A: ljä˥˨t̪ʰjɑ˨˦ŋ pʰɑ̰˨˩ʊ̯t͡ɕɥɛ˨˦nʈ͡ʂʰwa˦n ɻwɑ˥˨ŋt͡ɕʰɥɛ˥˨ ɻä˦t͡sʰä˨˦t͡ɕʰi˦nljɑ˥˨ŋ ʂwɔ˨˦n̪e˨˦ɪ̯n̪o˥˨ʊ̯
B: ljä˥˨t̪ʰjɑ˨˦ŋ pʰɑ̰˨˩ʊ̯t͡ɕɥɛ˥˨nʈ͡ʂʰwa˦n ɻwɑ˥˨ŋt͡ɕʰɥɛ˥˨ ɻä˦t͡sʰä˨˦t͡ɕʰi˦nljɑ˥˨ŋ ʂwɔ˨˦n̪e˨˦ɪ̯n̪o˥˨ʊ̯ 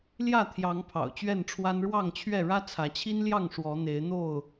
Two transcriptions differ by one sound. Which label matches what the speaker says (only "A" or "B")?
B